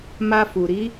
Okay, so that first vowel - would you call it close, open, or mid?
open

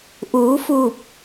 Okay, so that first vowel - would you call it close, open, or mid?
close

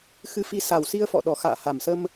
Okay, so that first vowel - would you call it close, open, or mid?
close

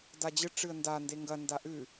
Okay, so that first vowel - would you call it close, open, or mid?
open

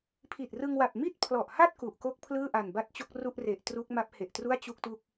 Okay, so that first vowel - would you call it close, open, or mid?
close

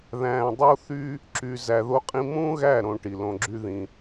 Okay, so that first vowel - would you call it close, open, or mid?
open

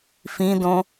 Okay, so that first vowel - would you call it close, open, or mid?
close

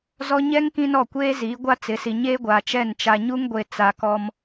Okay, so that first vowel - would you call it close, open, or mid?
mid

